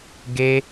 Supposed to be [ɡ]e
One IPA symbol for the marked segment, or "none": ɡ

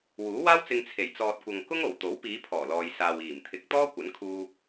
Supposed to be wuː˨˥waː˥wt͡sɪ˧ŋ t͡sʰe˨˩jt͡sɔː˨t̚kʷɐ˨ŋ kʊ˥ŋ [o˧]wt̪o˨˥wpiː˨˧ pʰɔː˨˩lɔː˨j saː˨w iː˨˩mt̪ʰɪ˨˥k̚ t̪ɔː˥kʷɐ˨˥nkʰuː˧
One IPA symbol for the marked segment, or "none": o˨˩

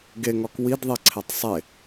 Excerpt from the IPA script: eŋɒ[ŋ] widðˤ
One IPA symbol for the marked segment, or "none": k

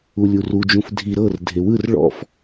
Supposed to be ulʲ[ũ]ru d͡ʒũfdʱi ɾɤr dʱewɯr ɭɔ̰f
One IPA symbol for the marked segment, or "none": u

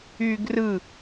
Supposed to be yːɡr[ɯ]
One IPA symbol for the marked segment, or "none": ɯ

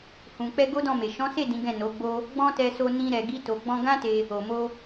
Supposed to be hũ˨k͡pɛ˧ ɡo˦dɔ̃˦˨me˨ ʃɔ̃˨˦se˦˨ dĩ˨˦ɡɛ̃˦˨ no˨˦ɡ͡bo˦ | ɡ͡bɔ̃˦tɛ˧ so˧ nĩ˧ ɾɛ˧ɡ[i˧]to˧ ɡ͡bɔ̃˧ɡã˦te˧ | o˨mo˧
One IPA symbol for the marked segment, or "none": i˦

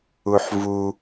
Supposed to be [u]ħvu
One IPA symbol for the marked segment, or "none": u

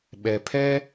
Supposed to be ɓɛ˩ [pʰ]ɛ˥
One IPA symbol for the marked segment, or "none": pʰ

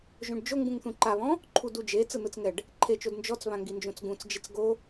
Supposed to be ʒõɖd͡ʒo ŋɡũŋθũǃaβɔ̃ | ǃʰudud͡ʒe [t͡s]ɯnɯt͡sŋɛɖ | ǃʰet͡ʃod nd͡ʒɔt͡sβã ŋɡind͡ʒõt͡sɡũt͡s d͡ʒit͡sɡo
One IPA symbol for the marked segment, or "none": t͡s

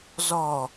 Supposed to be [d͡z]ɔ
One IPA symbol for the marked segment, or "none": z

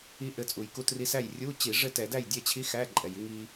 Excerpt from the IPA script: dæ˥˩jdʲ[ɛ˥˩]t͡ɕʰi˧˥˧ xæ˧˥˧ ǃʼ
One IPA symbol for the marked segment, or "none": ɛ˥˩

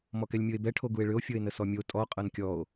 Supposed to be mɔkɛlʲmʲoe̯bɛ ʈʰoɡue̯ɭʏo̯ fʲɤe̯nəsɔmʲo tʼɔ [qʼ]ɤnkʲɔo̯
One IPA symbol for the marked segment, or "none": qʼ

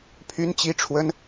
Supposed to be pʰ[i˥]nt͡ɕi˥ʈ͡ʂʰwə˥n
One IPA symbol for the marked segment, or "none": y˥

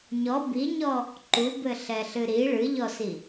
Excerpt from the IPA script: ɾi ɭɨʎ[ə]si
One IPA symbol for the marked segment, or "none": ɔ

